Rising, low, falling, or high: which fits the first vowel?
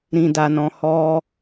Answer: low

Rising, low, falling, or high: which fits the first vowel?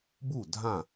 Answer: falling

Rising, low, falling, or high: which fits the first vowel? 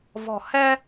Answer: low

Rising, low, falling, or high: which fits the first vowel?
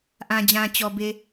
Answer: low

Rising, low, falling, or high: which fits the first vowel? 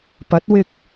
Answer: rising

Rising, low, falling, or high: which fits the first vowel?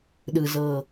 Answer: low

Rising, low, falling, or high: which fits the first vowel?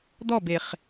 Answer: falling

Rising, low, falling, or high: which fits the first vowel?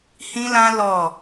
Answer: high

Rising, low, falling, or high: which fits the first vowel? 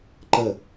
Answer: falling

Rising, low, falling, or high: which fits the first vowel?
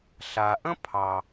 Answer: low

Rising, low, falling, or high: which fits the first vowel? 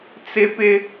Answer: high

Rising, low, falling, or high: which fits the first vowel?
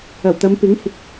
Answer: low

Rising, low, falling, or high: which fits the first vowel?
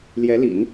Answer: rising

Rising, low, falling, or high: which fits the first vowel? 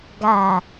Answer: low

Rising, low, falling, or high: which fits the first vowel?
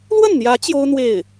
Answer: falling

